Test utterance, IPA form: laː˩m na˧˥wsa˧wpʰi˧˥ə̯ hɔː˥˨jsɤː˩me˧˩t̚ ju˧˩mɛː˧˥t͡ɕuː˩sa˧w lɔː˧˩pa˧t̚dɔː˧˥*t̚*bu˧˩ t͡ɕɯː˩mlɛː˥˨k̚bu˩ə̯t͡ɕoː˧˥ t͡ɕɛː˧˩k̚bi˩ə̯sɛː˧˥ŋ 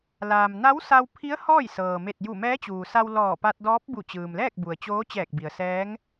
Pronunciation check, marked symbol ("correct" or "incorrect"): incorrect